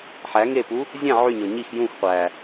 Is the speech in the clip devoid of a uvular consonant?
no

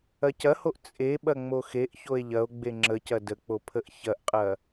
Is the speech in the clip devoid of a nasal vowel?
yes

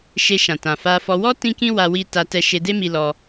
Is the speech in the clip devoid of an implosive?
yes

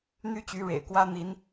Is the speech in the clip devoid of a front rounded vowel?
no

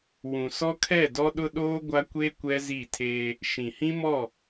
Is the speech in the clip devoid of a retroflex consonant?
yes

